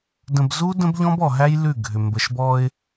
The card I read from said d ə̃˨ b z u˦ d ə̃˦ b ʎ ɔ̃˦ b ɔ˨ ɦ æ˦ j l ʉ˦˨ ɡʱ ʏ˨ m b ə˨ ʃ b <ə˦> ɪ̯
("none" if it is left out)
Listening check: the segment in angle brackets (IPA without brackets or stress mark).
ɔ˦